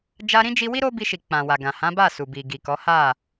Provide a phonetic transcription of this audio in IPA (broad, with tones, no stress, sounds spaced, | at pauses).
d͡ʒ a˧ ɾ ĩ˦ d͡ʒ i˧ w i˦ ɾ o˦ b i˧ ʃ i˨ k͡p ã˨ w a˨ ɡ ã˨ h ã˨˦ b a˦˨ s u˨ b i˨ ɡ i˨ k ɔ˨˦ h a˦˨